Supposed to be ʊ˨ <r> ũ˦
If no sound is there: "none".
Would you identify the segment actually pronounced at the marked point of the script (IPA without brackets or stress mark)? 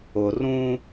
r